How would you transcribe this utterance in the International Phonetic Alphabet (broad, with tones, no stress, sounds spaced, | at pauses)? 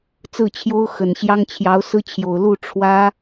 t͡s ɹ̩˥˩ t͡ɕʰ j o˥ ʊ̯ x ə˨˩ n ɕ j ɑ˥ ŋ t͡ɕʰ j ɑ˧˥ ʊ̯ s ɹ̩˥ t͡ɕʰ j o˨˩ ʊ̯ l u˥˩ ʈ͡ʂʰ w ä˥